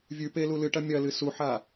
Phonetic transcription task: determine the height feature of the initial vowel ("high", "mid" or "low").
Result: high